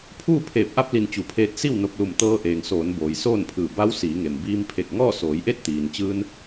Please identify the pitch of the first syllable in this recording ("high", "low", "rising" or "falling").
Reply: falling